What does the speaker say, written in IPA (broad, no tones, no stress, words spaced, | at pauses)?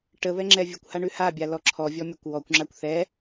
ʈəβɛ ŋ͡ǁɛvʲəkʷha ɳʉhabʲa lɔǁʰɔvʲɔ mʲɔkʷwɔkʷŋ͡ǁakʷ θɛ